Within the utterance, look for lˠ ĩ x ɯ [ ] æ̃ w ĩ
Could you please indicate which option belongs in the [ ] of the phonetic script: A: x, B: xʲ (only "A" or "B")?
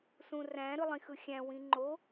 B